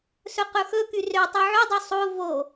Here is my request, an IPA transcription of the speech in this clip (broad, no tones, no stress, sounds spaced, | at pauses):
s ɵ q ɵ x ɵ k y r ø tˤ y ʕ y dˤ y sˤ o v o